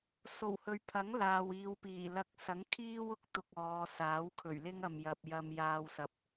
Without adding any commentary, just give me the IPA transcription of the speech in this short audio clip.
s o˨˩ w h ɵ˨ ɥ pʰ ɐ˨˥ ŋ l aː˨ w iː˨ w p iː˨˩ l ɐ˧ k̚ s ɐ˨˥ ŋ kʰ iː˥ w ʊ˧ k̚ t̪ ʊ˧ k̚ ɔː˨˧ s aː˨˥ w kʰ ɵ˨˩ ɥ l ɪ˥ ŋ ɐ˨ m j ɐ˨ p̚ j ɐ˨ m j aː˨ w s ɐ˨ p̚

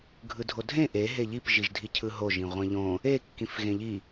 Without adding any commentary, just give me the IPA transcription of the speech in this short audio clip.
ɡʱ ɯ dʱ o dʱ ẽ ʔ e ɦ e ʎ i p ʒ i ʒ dʱ i cʰ ɯ ɦ o ʒ ĩ ʁʷ ẽ ʎ õ | e kː ĩ f ɣ ẽ ʎ i

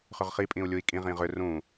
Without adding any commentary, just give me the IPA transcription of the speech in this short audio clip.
χ ʏ ʁ χ i pʼ ĩ u̯ lʲ u i̯ kʼ ĩ ʁ ĩ ʁ ʏ r ũ

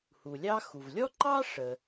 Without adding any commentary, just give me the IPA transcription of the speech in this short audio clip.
h u˩ lʲ ɑ˥ x u˩ v lʲ ɔ˥ ǃ ɑ˥ ʂ ə˩

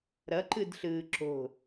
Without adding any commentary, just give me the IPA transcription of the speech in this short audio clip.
ɾ ʌ ǃ ɯ d ɬ ɯː ǁ o̤

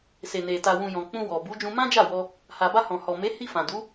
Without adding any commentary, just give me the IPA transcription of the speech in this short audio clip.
s e˨ n e˨ t a˨ w ũ˨ j ɔ̃˨ k͡p ũ˧ w ɔ˨ b u˨˦ d͡ʒ ũ˧ m ã˦ d͡ʒ a˦˨ w ɔ˧ | h a˨ b a˧ h ɔ̃˨ h ɔ˨ m e˨˦ h i˧ f ã˨ d u˨˦

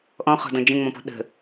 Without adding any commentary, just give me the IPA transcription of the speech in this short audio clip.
ʔ ɔ̃ χ ɔ̤ d ɔ̃ d͡ʒ ə̃ ŋ͡m ɔ̃ p ɔ̤ ɗ ə̤

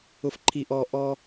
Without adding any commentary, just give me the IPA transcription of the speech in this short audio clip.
ʊ˧ f ǃʰ i˧ ʔ ɔ˧ ʔ ɔ˧

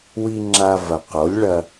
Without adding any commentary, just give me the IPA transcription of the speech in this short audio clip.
w i˧ ŋ͡ǁ a˧ v ɐ˨ q o˨˦ lʲ ɭ ɐ˧

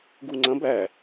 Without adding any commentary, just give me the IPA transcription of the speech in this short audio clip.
ɡ u ŋ͡ǀ ɐ̃ b æ

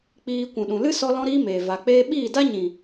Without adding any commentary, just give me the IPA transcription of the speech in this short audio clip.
k͡p iː˧ kʷ ũ˨ ɗ ũ˨ l ɨ˦ s ɔ˦ l ɔ̃˦ ɾ iː˦ m eː˨ v a˨ k͡p eː˦ ɓ iː˦˨ d a˦ ɲ ĩ˨

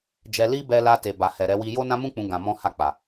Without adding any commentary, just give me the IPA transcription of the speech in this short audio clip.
d͡ʒ ɛ˧ l i˦ b ɛ˧ l a˧ t e˨ b a˨ h ɛ˨ ɾ ɛ˧ w i˧ j o˦ n ã˦ m ũ˦ k͡p ũ˧ ɡ ã˧ m ɔ̃˦ h a˦˨ k͡p a˨

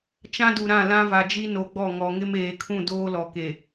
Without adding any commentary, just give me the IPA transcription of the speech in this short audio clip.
t͡ʃ ã˦ d u˨ ɾ ã˦˨ l ã˦ v a˨ d͡ʒ i˦ n o˨ ɡ͡b ɔ˦˨ ŋ ɔ˨ ŋ ɪ˦ m eː˨ kʰ ũ˦˨ d oː˦ l ɔ˨ k e˨

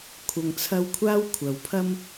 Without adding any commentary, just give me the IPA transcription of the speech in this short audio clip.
kʷʰ ɐ˧ ŋ t͡sʰ ɐ˥ w kʷʰ aː˥ w kʷʰ ɐ˨˥ w pʰ ɐ˥ m

